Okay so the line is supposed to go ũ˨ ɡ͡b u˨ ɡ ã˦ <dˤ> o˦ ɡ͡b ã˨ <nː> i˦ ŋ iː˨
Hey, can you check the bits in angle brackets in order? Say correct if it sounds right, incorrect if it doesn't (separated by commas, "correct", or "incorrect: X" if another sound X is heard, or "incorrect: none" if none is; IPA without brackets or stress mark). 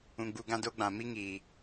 incorrect: d, incorrect: m